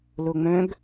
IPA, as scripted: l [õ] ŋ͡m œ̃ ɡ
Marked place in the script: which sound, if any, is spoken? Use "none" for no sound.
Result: o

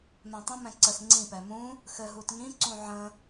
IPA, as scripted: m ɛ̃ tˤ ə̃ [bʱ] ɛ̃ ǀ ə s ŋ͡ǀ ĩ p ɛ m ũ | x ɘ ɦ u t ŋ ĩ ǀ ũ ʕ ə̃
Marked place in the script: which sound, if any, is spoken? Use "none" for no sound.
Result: m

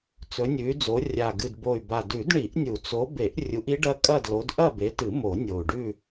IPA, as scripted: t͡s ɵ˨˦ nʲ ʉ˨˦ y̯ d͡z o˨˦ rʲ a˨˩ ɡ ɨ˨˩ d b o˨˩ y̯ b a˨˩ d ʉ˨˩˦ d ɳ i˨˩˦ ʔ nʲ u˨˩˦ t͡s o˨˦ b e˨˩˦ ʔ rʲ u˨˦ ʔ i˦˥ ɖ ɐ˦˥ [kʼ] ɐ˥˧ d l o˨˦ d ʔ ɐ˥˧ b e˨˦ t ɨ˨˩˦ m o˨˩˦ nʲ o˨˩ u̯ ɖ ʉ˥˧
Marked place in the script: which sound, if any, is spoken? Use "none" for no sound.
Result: kʼ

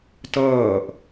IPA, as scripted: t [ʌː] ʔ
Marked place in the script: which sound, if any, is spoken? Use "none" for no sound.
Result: ʌː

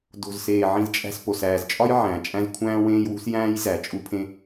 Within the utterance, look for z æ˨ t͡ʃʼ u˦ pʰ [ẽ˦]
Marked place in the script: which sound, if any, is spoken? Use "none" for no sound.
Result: ẽ˦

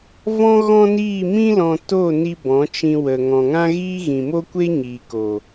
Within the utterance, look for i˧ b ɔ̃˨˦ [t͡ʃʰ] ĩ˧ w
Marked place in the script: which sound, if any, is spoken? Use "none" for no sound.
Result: t͡ʃ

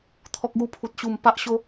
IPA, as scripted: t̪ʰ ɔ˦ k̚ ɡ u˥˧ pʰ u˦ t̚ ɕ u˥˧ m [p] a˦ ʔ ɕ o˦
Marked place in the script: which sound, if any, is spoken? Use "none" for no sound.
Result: p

